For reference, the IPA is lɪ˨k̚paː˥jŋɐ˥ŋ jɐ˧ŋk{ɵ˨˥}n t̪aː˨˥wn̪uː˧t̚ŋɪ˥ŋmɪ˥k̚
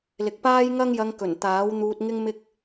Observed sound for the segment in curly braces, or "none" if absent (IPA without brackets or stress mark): ɵ˨˩